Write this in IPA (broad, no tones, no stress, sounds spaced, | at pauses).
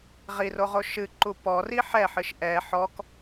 ʁ i r o ʁ o ʃ ɨ ǃ u p ɔ r i ħ ɛ ħ ɨ ʃ ʔ ɛ ħ ɔ k